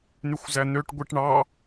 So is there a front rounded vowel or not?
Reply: yes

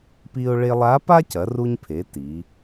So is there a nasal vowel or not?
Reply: no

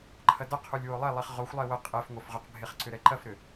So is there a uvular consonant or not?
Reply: yes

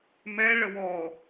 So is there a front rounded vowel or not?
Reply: no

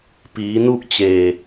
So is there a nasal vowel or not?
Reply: no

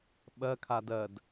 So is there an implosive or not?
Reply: yes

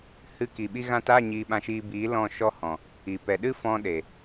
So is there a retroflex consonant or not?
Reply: no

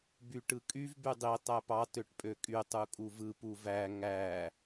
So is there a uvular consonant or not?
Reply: no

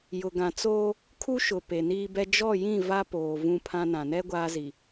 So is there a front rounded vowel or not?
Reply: no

